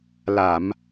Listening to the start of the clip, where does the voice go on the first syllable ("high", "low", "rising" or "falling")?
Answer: low